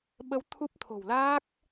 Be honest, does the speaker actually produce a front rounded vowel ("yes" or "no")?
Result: no